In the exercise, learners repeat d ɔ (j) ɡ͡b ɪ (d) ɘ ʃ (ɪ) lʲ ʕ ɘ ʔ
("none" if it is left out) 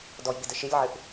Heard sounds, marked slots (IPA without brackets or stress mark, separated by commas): j, d, ɪ